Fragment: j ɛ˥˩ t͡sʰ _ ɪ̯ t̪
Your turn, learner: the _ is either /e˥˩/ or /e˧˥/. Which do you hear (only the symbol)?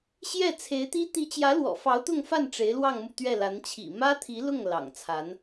e˧˥